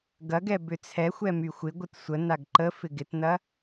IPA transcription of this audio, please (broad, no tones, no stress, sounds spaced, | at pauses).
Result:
ɡ ɐ ɡ ɛ b ʏ t͡sʰ ɛ xʷ ɛ m y xʷ ɪ ɡʷ ɪ t sʷ ə n a ɡ ǃ ə f ɪ ɡ ɪ t n ɐ